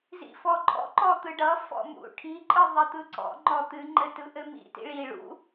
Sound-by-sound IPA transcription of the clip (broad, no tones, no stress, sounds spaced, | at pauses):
z ḭ f ɔ ǃʼ ɔ̰ ǃ ɔ t̪ ɯ ɖ ʌ f ɔ̰ m ṵ ʈʰ i ǃʼ ɯ ðˤ ɘ t̪ ɯ ǀ ɔ̰ ŋ͡ǃ ɔ t̪ ɨ ŋ͡ǃ ɘ t ɯ ʔ ɘ m ḭ t ḭ ɭ i ɭ ṵ